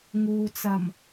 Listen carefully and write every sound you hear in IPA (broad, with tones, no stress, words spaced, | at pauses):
ŋuː˨t͡sɐ˨˩m